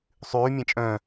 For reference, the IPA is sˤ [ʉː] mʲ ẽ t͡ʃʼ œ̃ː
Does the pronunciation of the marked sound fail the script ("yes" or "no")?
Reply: no